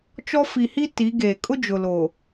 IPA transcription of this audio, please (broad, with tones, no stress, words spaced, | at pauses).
t͡ʃɔ˦ fi˨hi˦ ti˨˦ɡeː˨ kʼʊ˦ d͡ʒʊ˨lo˨